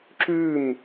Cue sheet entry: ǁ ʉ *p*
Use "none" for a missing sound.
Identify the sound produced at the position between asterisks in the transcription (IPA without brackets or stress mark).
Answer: m